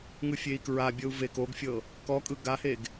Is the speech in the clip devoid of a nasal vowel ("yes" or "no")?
yes